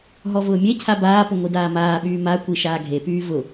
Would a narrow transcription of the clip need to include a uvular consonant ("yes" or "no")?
no